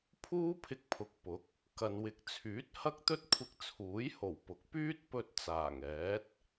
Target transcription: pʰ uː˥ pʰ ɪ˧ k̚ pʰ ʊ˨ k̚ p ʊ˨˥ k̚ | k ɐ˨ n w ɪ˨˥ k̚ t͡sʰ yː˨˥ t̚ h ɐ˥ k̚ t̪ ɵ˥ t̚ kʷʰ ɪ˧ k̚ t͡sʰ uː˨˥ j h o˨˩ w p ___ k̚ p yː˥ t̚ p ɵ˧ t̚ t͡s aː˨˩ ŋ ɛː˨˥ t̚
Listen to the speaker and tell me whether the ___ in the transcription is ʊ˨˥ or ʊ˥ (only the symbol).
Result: ʊ˨˥